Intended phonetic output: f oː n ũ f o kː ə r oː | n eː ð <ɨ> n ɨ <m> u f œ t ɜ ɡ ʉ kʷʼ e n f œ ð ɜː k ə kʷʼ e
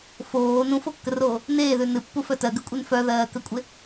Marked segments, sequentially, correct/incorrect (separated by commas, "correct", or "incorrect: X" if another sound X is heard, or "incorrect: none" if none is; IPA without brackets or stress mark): incorrect: ʉ, incorrect: pː